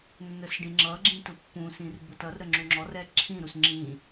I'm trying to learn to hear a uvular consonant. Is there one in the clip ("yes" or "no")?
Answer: no